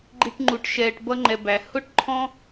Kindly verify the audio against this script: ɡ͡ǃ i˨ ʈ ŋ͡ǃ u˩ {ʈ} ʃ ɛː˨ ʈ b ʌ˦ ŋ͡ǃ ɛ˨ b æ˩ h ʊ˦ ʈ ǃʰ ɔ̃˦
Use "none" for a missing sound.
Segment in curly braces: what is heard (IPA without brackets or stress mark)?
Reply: ʈ